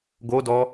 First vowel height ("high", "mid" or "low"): mid